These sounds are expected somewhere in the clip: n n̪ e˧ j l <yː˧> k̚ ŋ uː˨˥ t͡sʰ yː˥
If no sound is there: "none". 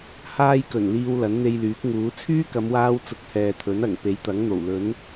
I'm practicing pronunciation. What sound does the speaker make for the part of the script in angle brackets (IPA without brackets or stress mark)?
yː˨˥